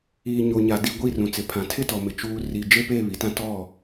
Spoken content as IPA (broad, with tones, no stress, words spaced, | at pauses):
iː˨ ɲo˨ɲa˨di˦˨ ɡʷi˦˨ rũ˨t͡sɪ˨ pʰã˨tʰɪ˦tɔ˨mɪ˨ t͡ʃuː˨ ri˨ d͡ʒe˦peː˦˨ βi˨tã˦ tɔ˦˨